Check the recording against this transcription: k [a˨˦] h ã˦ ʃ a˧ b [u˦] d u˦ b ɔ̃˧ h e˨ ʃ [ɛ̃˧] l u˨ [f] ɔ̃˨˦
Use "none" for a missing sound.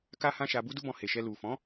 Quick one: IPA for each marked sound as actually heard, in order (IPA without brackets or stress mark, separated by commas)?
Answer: a˦, u˦, ɛ˧, f